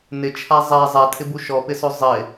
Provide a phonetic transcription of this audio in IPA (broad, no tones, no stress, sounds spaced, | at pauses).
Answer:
n ɪ t͡ʃʰ a zˤ ɛ zˤ ɛ tʰ ɪ b u ʃ ɔ p ɪ s o zˤ ɪ